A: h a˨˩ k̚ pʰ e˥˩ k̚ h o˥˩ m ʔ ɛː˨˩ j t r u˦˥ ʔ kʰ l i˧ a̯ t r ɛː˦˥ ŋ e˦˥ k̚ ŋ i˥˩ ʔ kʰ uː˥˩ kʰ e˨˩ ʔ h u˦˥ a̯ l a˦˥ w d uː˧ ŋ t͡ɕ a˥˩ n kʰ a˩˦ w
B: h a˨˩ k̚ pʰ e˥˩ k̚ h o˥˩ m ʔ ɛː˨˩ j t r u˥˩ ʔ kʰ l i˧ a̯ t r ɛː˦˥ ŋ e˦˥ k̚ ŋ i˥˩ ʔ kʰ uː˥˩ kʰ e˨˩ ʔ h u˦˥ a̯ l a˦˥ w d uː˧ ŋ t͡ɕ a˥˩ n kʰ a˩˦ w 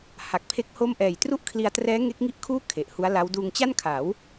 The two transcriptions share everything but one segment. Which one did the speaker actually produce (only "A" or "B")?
B